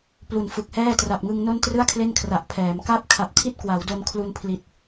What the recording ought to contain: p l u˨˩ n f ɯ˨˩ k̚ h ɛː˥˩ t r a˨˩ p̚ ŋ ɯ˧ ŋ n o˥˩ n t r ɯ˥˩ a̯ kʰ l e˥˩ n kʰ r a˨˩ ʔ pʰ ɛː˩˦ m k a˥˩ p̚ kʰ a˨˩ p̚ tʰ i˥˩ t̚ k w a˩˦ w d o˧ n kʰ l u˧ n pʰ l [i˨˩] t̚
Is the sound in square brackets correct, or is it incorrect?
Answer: correct